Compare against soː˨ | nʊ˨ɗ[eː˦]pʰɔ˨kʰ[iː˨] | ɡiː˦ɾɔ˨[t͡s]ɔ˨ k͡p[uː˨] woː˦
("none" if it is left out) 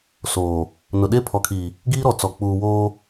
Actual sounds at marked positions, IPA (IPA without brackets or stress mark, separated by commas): e˦, iː˨, t͡s, uː˨